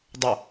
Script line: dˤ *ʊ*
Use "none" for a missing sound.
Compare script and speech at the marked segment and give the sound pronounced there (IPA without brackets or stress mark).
ʊ